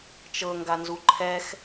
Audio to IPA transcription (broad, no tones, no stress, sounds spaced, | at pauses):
t͡ʃ ɤ ŋ ɡ a n z u ǃʰ ɛ x